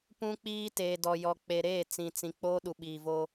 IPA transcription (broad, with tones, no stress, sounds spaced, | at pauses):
p ũ˦ k͡p iː˦ t eː˨ d ɔ˨ j ɔ˨ k͡p e˨ ɾ eː˦˨ t͡s ĩ˨ t͡s ĩ˨ k͡p oː˦ ɗ u˨ ɓ iː˨ v oː˦